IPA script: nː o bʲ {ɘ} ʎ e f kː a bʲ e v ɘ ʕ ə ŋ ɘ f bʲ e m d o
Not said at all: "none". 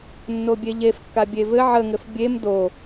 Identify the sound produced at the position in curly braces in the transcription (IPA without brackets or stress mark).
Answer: e